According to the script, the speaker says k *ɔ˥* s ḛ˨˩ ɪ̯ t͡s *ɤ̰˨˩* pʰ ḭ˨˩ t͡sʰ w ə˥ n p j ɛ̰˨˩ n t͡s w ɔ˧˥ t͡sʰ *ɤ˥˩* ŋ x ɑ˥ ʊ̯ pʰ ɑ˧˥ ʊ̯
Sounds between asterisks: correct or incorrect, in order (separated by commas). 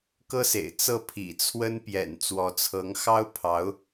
incorrect, incorrect, incorrect